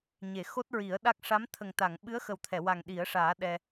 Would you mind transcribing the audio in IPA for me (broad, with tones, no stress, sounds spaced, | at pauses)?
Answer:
ɲ e˨˩˨ x o˦˥ t̚ ɹ i˨˩˦ ə̯ ɗ a˦˥ k̚ ʂ a˧˥ m t̪ʰ ə˨˩ ŋ t̪ a˨˩˨ ŋ ɓ ɨ˧˥ ə̯ x ə˨˩ w t̪ʰ ɛ˨˩˨ w a˨˩ ŋ ɗ i˨˩˦ ə̯ ʂ aː˨˩˦ ɗ ɛ˧